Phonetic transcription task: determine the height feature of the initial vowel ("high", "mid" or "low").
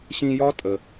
high